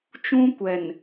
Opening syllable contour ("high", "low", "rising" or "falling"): high